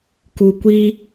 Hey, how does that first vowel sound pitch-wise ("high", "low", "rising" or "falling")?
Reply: low